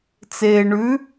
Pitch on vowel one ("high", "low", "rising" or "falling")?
low